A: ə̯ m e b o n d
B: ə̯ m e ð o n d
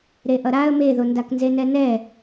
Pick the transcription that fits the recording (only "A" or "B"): B